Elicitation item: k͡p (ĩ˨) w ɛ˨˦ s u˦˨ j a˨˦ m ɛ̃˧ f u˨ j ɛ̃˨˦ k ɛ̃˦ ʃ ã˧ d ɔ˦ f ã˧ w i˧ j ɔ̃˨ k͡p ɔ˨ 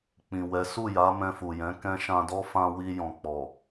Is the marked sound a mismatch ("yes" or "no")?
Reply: no